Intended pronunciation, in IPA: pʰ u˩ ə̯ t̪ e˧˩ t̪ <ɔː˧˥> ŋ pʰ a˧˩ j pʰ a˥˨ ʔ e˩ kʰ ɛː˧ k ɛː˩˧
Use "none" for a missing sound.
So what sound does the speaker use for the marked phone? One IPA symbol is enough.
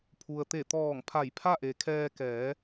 ɔː˧˩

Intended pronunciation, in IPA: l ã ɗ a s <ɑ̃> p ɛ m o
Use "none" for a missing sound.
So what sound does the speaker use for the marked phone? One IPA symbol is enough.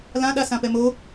ã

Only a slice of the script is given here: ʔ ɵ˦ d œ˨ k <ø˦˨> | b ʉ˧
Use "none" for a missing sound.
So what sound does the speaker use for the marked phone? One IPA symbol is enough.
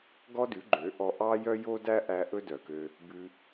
ø˧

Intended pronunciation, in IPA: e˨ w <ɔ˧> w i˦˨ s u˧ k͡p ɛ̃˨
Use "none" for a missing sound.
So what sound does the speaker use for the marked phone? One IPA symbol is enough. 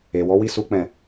ɔ˨˦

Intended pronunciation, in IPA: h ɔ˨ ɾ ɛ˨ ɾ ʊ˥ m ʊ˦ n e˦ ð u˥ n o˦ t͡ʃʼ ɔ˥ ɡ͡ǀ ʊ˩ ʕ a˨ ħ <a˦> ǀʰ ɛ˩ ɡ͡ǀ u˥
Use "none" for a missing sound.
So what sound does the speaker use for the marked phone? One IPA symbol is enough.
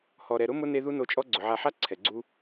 a˦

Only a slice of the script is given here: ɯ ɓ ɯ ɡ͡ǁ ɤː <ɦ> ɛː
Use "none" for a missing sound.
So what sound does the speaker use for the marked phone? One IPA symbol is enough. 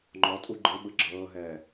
ɦ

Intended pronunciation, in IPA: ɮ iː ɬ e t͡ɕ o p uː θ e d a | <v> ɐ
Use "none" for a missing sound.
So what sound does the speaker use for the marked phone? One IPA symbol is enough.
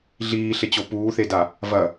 v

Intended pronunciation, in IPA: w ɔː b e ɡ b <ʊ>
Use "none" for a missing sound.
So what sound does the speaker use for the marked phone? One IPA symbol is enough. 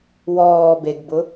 ʊ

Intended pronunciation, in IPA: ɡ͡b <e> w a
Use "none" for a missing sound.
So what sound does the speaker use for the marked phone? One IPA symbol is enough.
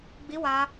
i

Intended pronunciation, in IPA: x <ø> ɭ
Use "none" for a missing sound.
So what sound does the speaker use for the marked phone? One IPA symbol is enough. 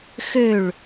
ø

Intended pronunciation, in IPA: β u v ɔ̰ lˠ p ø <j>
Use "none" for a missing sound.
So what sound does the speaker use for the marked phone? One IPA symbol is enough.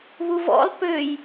j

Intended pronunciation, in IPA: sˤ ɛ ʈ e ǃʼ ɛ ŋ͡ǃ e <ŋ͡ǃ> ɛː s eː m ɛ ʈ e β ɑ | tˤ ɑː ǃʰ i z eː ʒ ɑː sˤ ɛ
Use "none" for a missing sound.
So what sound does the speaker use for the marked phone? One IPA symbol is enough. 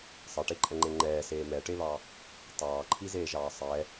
ŋ͡ǃ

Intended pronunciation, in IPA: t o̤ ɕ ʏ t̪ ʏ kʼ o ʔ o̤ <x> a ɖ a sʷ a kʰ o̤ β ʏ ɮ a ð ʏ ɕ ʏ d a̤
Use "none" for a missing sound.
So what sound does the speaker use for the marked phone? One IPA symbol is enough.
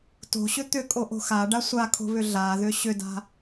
x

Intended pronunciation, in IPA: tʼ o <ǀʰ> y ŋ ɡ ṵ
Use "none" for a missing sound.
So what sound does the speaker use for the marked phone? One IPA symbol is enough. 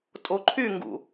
ǃʰ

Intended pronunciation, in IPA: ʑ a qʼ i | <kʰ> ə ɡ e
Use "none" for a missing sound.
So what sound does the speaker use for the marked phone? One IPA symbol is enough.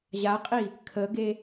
kʰ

